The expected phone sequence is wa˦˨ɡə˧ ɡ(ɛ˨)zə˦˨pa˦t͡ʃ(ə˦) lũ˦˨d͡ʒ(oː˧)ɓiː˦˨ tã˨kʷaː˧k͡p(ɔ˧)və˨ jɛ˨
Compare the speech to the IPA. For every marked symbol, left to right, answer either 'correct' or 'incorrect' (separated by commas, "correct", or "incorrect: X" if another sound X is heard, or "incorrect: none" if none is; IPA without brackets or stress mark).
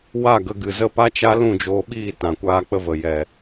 incorrect: ɨ˨, incorrect: a˦, correct, incorrect: ə˧